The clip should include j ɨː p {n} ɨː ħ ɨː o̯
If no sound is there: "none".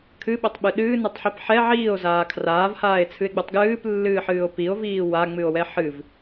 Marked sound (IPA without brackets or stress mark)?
lː